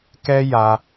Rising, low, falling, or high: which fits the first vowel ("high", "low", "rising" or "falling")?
high